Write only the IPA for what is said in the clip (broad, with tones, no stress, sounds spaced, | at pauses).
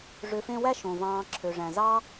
ʐ ø˨ f ẽ˦ w æ˥ ʃ õ˩ v ɑ̃ː˨ ǁʰ ø˩ ʐ æ̃˩ z ɑ˥